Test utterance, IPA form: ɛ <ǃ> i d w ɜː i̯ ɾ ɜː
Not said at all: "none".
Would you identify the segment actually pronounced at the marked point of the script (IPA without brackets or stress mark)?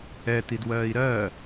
t